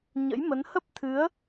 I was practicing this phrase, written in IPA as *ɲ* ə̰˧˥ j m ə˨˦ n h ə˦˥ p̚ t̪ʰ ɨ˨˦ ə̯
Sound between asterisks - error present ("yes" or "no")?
no